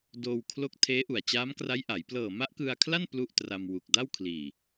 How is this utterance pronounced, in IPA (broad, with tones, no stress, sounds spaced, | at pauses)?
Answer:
d oː˧ w kʰ l o˦˥ k̚ tʰ eː˦˥ ʔ u˨˩ a̯ t͡ɕ aː˦˥ m k r a˦˥ j ʔ a˩˦ j p l ɤː˨˩ m a˦˥ ʔ k ɯ˧ a̯ kʰ l a˥˩ n p l u˥˩ ʔ t r a˧ m w u˨˩ k̚ d a˥˩ w kʰ l iː˨˩